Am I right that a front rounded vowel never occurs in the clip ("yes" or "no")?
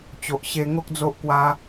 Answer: yes